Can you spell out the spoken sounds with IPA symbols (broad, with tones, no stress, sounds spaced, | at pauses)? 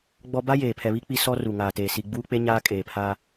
ɡ͡b ɔ˦ b a˦ j eː˨ pʰ ɛ˨ β i˦ k͡p i˦ s ɔ˦ r u˨ ŋ aː˨ t eː˨ s i˨ ɡ͡b uː˦ k͡p e˦ ɲ aː˦ kʼ eː˨ pʰ aː˦